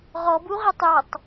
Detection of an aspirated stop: absent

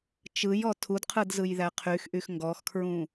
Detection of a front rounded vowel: present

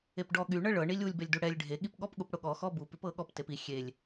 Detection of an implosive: present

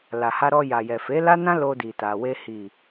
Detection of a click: absent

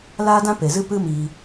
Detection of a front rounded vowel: absent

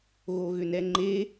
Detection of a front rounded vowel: present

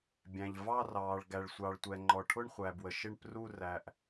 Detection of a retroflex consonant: present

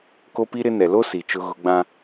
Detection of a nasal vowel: present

